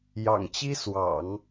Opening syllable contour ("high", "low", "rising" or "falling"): low